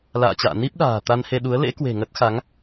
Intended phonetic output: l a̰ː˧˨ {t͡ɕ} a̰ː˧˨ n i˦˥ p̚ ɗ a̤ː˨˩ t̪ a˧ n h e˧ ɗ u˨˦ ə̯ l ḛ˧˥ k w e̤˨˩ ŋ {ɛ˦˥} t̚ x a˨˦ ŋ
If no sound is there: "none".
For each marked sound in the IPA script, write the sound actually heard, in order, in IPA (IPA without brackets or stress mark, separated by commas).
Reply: t͡ɕ, ə˦˥